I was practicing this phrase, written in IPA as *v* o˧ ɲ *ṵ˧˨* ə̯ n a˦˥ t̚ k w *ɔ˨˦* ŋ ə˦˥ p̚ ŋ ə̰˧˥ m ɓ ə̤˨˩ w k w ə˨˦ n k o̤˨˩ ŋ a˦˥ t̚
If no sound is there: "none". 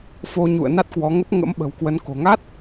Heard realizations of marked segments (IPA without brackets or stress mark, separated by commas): f, ṵ˧˨, ɔ˨˦